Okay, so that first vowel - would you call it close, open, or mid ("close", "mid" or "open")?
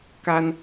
open